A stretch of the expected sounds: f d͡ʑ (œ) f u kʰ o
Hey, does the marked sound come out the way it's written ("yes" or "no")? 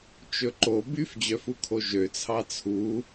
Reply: yes